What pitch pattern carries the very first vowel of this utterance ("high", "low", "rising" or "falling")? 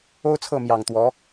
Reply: high